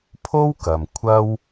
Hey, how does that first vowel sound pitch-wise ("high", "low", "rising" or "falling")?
high